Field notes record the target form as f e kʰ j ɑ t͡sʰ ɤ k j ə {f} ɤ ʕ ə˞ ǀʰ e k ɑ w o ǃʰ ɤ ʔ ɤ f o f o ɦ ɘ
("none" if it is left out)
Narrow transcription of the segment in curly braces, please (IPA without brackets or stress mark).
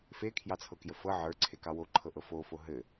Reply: f